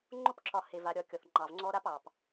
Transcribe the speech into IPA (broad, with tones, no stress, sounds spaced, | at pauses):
ŋ͡ǃ o˥ p ǁ ɒ˨ h e˩ v a˩ ɾʲ ɒ˨ kʲ ɔ˩ θ ŋ͡ǃ ɑ˩ v ŋ͡ǀ ɔ˦ ɾ a˥ p ɑ˩ p